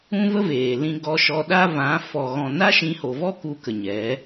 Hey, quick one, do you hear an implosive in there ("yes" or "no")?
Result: yes